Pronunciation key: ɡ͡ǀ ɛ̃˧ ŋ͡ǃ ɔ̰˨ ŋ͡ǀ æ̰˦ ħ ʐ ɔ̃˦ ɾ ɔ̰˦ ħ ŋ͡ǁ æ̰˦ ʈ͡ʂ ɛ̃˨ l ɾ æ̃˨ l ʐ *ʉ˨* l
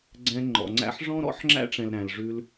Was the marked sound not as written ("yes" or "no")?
yes